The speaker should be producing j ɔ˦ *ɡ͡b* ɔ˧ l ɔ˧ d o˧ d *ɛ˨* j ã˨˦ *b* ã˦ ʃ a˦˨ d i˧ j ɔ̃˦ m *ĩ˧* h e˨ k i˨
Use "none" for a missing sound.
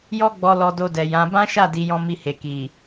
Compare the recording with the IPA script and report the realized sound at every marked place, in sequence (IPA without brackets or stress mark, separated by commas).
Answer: ɡ͡b, ɛ˨, b, i˧